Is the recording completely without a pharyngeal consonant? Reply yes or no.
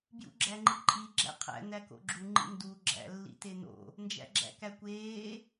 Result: yes